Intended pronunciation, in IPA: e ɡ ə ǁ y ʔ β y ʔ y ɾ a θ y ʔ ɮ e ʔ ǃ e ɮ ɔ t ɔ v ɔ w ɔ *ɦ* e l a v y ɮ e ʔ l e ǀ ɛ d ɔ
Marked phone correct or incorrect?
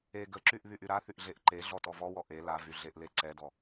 incorrect